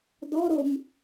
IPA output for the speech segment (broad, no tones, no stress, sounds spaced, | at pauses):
d ɔ ɾ o m